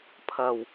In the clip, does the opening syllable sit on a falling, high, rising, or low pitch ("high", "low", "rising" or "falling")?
low